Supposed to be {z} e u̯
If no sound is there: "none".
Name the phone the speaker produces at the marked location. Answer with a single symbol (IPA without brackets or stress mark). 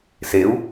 s